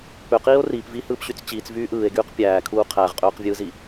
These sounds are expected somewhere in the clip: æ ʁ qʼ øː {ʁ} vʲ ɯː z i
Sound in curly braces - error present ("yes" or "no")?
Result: yes